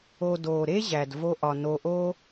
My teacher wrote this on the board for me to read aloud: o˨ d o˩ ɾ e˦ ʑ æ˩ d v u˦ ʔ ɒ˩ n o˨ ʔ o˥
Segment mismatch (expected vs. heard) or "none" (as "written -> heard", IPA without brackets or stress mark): u˦ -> o˦